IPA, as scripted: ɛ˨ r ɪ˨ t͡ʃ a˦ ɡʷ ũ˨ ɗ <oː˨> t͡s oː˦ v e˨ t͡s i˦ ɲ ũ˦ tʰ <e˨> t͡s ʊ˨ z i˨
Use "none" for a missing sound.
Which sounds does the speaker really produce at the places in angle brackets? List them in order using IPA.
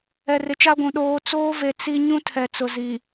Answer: oː˨, ɛ˨

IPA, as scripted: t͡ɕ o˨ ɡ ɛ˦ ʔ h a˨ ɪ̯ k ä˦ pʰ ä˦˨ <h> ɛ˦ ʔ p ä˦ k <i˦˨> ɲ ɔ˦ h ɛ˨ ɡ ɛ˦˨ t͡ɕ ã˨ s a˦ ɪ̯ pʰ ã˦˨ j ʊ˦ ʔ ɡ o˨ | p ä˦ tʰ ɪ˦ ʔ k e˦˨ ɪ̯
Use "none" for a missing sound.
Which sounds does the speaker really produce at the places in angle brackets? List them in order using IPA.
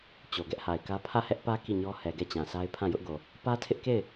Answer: h, i˦˨

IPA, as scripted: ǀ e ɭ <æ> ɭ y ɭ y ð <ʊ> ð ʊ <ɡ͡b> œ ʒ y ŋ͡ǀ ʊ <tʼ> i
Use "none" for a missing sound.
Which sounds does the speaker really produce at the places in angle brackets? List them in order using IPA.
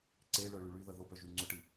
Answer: œ, ə, b, ʈ

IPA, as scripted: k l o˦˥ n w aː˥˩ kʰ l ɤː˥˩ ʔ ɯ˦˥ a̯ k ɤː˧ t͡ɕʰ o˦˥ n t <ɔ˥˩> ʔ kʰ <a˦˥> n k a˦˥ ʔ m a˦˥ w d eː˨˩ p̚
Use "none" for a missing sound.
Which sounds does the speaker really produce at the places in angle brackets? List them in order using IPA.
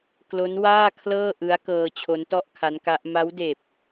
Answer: ɔ˥˩, a˦˥

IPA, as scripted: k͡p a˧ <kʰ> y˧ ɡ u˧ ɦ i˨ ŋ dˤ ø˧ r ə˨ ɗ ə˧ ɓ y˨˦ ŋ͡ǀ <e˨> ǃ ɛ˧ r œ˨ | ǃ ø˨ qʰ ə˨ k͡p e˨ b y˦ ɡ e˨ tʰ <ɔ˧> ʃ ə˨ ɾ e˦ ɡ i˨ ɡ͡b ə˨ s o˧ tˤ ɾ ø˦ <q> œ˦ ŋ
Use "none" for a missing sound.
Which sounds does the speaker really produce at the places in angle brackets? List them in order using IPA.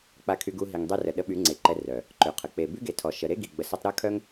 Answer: kʰ, e˨, ɔ˨, kʰ

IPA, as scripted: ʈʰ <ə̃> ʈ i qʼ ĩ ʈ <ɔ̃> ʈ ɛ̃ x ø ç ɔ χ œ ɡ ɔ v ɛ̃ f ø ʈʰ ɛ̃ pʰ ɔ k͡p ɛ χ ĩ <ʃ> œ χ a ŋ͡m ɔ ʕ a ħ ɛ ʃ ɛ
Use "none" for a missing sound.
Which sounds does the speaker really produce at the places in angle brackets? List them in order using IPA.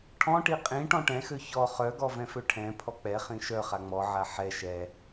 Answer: ɔ̃, ɔ̃, ʃ

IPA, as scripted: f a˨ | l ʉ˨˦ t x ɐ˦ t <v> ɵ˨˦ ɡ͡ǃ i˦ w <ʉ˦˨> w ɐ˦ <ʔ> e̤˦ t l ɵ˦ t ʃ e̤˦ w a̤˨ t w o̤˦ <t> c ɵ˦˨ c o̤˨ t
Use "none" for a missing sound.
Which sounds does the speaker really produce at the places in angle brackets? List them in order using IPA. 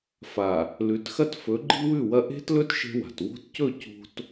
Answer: f, ʉ˦˨, ʔ, t

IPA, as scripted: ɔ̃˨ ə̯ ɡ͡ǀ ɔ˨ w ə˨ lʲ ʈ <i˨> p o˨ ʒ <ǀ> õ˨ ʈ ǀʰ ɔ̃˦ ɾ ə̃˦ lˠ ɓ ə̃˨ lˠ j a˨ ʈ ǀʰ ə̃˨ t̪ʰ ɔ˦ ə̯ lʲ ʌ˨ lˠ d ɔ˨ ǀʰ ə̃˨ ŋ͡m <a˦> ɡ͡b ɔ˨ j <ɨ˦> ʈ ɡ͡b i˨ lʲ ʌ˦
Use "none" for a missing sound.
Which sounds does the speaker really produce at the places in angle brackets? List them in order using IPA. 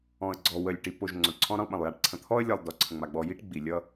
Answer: i˨, ŋ͡ǀ, a˨, i˦

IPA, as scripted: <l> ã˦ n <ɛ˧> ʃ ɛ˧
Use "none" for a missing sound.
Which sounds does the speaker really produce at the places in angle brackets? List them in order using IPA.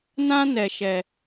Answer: n, ɛ˧

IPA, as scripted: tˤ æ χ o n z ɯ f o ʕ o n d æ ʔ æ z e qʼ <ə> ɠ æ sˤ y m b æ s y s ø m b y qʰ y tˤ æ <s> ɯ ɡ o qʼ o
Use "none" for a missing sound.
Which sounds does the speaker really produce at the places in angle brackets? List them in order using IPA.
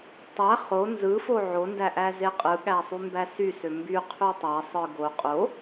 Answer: ɯ, sˤ

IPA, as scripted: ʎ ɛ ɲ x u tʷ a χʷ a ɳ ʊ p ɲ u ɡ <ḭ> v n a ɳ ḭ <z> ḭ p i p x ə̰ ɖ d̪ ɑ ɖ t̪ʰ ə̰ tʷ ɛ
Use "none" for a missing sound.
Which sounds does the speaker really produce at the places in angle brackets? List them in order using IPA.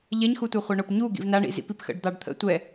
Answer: ḭ, z

